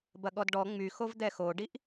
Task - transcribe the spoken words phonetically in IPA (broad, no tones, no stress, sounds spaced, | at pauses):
b ɐ ɠ ɔ d ɖ ɔ ŋ͡m y x o v d̪ ɛ x o ɖ i ʔ